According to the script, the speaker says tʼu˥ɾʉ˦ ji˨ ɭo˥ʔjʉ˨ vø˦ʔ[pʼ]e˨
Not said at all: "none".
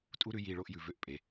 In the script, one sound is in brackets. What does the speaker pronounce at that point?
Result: pʼ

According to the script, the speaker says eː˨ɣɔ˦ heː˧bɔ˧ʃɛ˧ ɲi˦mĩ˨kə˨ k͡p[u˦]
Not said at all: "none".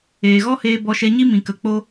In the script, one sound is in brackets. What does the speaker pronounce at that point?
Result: o˦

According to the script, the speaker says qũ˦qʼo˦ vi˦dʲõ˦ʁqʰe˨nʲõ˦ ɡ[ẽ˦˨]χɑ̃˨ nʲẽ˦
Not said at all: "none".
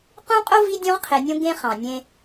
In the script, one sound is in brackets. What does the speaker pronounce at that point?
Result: ẽ˦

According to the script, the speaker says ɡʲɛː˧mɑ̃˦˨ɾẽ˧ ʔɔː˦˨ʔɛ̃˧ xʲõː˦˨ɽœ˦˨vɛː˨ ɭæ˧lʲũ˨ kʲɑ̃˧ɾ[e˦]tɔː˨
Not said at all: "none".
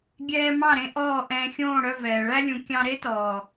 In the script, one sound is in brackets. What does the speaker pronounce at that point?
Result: e˦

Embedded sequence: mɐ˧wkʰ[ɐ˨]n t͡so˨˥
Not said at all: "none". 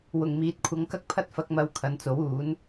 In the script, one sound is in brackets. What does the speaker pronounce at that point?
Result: ɐ˨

